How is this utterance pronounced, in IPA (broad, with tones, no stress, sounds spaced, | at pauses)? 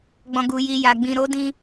ɡ͡b ɔ̃˨ ɡ u˨ j i˨ j a˨ ɡ͡b ĩ˨ ɾ o˨˦ d ĩ˧